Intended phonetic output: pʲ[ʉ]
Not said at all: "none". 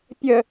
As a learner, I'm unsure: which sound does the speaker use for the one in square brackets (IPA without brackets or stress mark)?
ə